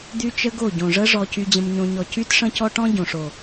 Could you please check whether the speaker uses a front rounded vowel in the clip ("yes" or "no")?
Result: yes